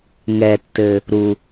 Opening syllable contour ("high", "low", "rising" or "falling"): low